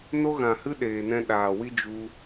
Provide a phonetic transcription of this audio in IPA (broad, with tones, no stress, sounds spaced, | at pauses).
n o˦ ɣ ã˨ h ɨ˦ ɗ eː˨ n ɛ̃˧ ɗ aː˨ w i˧ d͡ʒ u˦